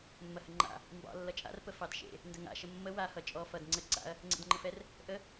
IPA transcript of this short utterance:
mː ɐ h ə ŋ͡ǃ a̰ | m b ɑ̰ lː ʌ t͡ʃʼ a̰ r p ə f ɑ d ʃ ḛ | n d ə ŋ a̰ ʃ ə mː ə w a h ʌ t͡ʃʼ ɔ f ʌ d ŋ͡ǀ ə ǀ a̰ ɐ̯ | ŋ͡ǀ ḛ d ŋ͡ǃ ə f ɛ r | ʔ ə

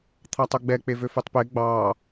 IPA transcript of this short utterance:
t̪ʰ ɑ tˤ ɵ ɡ͡b ɛ k͡p e v ø f ø tˤ p e ɡ͡b ɑ

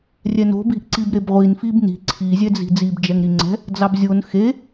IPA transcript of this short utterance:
rʲ ɛ n o̤ b i̤ ʔ ǀ i b ɾ e b ʁʷ i n f i b n i̤ ǀʰ i zʲ ɛ d͡z i̤ d͡z i b d͡ʒ ɛ ŋ ɾ i ŋ͡ǀ ɛ̤ | d͡z ɑ b zʲ o n x e

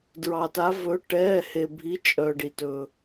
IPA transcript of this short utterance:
d ɹ ɑ˩ t a˩˧ v ɵ˩˧ ʈ ɛː˩˧˩ h e˩ bʱ i˩˧ t͡ʃʼ œ˩ ɖ i˩ t ɵ˩

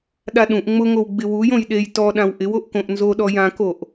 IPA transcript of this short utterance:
ɗ a ɗ ũ ʔ ŋ͡m ʊ ŋ o w ɡ͡b ɪ w u j õ j ɗ e j t ɔ ɗ ã w ʔ ɪ w o ʔ k õ ʔ n z o ɗ ɔ j ã k o ʔ

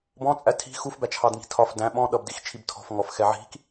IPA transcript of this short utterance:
b ɔ̃ t͡sʼ æ tʰ i̤ x u f b æ t͡ʃʰ ɑ d ŋ i̤ tʰ ɒ f d æ̃ ɓ ɔ̃ ɗ ʌ b d i x t͡ʃʰ i b tʰ ɔ̤ f ŋ ɔ f x ɛ ʕ i̤ k

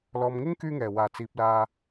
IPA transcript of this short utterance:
l ɔː˨ m ŋ ɪ˥ ŋ k yː˥ ŋ ɛː˨˩ w aː˨˩ t͡s iː˨ p̚ l aː˧

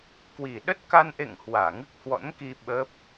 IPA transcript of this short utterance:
k w i˨˩ ɗ ə˦˥ t̚ k a˧ n ʔ ḛ˧˨ ŋ h w aː˧˩ ŋ ɨ˦˥ k̚ h w ɔ̰˧˥ n k i˧ ɓ ə˦˥ p̚

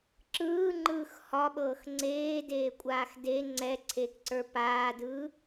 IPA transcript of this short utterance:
ǁ ɯː ŋ͡ǃ ɯː x h ɒ ɓ ɤː x ŋ͡ǀ eː d eː kʷʼ aː x d e ŋ͡ǀ ɛ ǀʰ eː k ǀ ə˞ p aː d ɯː

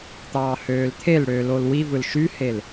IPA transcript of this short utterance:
t̪ ɑː h øː l t̪ʰ e l ɽ ø l o l w i v ɯ l ʃ y h e l

